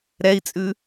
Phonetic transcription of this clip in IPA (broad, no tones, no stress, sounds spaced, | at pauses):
ɾ ɛ i̯ t͡sʼ ʉ